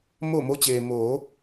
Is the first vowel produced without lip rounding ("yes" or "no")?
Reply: no